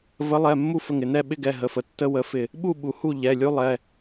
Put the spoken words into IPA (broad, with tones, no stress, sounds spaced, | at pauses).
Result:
v ə˨˥ lˠ ɛ˩˧˩ mː u˥˨ f ə˧˩ ŋ ɪ˧˩ n ɛ˥˨ ɓ ɪ˦ ɡ ɛ˩˧˩ ɦ ə˩˧˩ f ə˩˧˩ tː ə˦ w ə˨˥ f ɪ˧˩ | ɓ u˥˨ ɓ u˩ h u˥˨ ʎ ɛ˩˧˩ lʲ u˦ lˠ ɛ˩˧˩